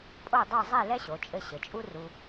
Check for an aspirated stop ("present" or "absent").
absent